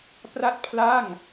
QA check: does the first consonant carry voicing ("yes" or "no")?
no